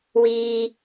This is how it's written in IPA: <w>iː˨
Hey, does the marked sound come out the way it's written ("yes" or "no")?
yes